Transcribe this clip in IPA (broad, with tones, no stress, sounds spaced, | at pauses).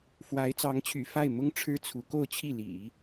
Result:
f w a˧˥ ɪ̯ t͡s ɑ˧˥ ŋ t͡ɕʰ y̰˨˩ f a˥˩ ɪ̯ m ʊ˥ ŋ ʈ͡ʂʰ ɻ̩˥ t͡sʰ u˧˥ k o˥˧ ʊ̯ t͡ɕʰ i˥˩ l ḭ˨˩˦